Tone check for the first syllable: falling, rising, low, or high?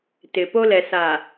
low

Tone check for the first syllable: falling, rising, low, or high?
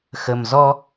low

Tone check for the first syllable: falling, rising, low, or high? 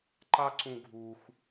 high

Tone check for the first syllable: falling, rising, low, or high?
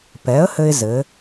rising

